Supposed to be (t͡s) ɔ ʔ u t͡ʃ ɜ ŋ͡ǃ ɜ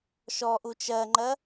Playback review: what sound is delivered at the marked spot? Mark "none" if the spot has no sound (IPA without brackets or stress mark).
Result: ʃ